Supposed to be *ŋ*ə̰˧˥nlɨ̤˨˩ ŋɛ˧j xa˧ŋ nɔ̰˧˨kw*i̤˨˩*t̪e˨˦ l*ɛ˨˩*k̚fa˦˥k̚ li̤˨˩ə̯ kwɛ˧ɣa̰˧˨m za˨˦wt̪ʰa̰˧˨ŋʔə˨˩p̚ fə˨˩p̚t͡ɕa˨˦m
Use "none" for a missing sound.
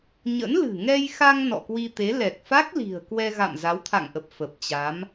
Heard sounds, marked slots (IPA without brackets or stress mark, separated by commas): ɲ, i˧, ɛ˨˩